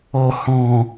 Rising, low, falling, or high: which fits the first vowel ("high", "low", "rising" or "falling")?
low